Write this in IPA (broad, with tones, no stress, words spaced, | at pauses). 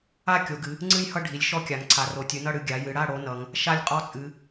a˥˨ kʲo˩˧ɡɨ˩˧ | ŋ͡ǀɨ˥˨jhʌ˥˨ ɖʱi˩˧lʲ ʃɔ˦˥kʲa˩˧ŋ ǀʰa˩˧ro˩˧ tʲɨ˩˧nʌ˥˨ɽɨ˩˧ ɡʲa˩˧jɨ˩˧ɽa˥˨ ɽo˦˥nʌ˩˧ŋ | ʃa˥˨lʲqʼɔ˦˥t͡sʼɨ˩˧